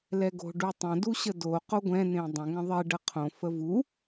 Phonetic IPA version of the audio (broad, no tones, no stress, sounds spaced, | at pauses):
l ɛ ɡ o̤ ɖ u tˤ ə̃ d u ɕ ə d o q o ɡʷ ɛ̃ n ẽ dˤ ə̃ ŋ ə̃ ðˤ e ɖ ə qʰ õ f ə v u